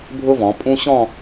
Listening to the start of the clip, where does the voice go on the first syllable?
high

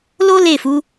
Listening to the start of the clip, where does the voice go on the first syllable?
high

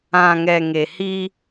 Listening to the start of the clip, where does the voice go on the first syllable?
low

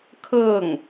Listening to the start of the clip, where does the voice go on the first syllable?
falling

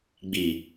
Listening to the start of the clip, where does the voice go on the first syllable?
low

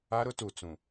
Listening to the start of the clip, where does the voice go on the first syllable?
high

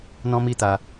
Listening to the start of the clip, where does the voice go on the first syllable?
high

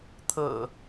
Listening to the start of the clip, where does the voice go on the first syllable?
low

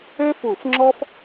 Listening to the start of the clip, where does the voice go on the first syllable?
high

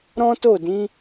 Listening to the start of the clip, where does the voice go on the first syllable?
high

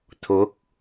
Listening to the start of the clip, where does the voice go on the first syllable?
rising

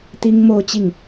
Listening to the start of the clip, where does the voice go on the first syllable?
high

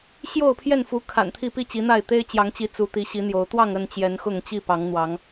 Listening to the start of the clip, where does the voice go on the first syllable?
falling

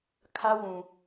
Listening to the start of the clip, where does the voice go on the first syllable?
high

